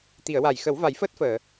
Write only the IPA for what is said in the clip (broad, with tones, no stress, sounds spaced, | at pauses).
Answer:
t̪ i˨˩˨ ə̯ w a˨˩˨ j x ə˨˩˦ w v a˨˩˦ j f əː˦˥ t̚ f əː˨˩˨